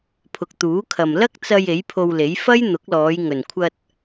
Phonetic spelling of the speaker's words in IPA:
pʰʊ˨k̚t̪uː˨˥kʰɐ˨m lɐ˥k̚t͡sɐ˧j e˨˥jpʰo˧wle˨˥j fɐ˥j n̪ʊ˨˥k̚lɔː˨˧j ŋɵ˨˩nkʷʰɐ˧t̚

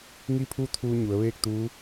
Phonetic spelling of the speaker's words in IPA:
ŋi˥˨pʰu˥˨t̪ʰuː˧ ɲu˩˧ə̯ʋeː˥˨k̚t̪uː˧˥

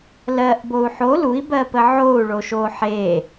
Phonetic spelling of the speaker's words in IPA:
lɜʔbou̯ ħo lui̯bɜpə ʕou̯ɭoʃo ħe

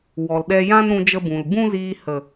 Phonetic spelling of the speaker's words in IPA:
wɔ˨lɗɛ˧jã˦n ɾũ˧d͡ʒə˧bũ˨l bũ˦ziː˧ hə˨

